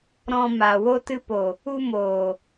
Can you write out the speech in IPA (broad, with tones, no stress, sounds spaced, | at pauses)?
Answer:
ɾ ɔ̃˨ m a˨ w o˧ t ɨ˧ p o˨ | u˧ m oː˨